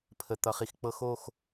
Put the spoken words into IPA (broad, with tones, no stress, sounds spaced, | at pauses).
pʰ ə˨ t̪ ʌ˨ χ i˨ x k͡p ɤ˦ x o˦˨ x